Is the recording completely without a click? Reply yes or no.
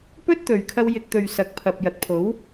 yes